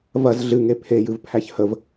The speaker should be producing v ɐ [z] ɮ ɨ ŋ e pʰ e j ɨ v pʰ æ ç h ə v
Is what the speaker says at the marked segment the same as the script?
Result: yes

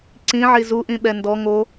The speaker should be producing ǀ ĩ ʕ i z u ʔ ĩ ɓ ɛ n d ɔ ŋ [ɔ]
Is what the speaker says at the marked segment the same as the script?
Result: no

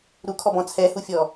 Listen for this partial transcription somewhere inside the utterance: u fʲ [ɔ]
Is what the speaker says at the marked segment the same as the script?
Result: yes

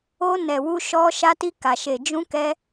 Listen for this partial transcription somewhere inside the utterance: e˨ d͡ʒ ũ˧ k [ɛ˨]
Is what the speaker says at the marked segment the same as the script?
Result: no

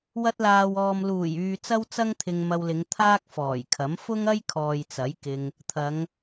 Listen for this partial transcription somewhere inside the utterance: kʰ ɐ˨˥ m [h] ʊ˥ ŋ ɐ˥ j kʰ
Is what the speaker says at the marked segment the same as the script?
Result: no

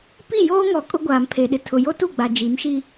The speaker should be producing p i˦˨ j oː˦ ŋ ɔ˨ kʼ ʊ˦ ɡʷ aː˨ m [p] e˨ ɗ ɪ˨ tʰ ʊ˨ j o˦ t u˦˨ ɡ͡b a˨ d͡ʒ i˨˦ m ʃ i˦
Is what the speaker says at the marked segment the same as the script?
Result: no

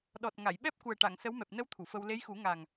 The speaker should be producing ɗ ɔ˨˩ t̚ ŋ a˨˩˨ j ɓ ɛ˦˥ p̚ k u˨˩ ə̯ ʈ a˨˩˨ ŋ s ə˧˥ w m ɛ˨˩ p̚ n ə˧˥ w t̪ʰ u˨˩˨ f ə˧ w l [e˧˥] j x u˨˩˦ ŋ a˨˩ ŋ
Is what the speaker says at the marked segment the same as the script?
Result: yes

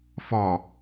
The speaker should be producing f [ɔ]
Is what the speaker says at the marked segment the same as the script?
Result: yes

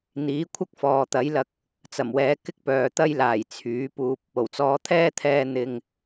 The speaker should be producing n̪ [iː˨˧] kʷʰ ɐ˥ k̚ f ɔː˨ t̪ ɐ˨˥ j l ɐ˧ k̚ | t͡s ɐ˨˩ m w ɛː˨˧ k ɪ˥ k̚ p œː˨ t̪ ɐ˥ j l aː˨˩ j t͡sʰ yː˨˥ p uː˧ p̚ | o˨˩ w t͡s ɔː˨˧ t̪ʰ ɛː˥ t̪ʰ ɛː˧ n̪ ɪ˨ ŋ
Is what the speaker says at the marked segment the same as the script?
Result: no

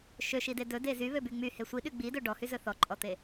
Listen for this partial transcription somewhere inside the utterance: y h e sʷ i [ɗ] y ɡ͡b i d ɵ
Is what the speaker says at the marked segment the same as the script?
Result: yes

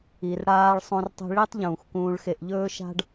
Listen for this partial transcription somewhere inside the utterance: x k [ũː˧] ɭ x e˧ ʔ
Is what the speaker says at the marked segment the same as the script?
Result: yes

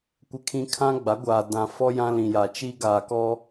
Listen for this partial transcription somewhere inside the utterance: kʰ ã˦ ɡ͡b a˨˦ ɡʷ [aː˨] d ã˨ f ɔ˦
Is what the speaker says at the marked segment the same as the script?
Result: yes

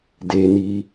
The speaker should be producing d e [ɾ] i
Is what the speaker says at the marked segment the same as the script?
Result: no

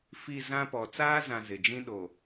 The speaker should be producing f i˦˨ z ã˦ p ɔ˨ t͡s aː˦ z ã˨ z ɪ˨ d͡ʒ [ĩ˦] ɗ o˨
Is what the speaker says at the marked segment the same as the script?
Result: yes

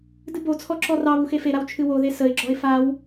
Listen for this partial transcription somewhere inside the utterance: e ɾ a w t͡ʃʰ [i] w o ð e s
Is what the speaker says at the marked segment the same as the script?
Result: no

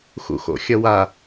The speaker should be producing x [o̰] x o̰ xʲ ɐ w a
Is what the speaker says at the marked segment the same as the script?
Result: no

